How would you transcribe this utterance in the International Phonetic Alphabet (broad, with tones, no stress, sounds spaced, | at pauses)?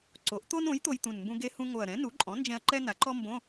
ǀ o˩˥ ʔ t̪ o˥ n õ˩˥ j t̪ o˧ j t̪ ũ˨˩ n m b ũ˧ ɡ e˧ h ũ˧ ŋ o˨˩ ɐ̯ ɾ ɛ̃˩˥ n u˩˥ ǃʼ ɔ̃˩˥ n d͡ʒ ɛ̃˧ ɐ̯ ǃ ɛ˥ n a˩˥ ǃ ɔ˥ m b õ˧˥˧